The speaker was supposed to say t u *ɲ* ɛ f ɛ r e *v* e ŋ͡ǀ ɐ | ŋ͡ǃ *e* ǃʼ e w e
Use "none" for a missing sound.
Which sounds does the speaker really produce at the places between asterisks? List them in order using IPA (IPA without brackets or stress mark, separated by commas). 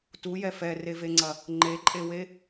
j, v, e